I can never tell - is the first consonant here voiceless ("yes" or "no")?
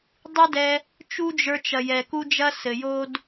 no